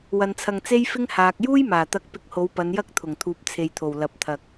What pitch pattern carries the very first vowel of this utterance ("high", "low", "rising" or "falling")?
low